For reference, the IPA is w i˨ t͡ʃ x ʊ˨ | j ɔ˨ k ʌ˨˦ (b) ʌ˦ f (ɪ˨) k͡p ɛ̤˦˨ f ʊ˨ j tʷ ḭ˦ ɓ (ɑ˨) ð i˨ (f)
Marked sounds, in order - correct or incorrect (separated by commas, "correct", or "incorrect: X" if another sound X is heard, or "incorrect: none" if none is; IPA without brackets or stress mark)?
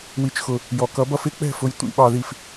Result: correct, incorrect: ɪ˦, correct, correct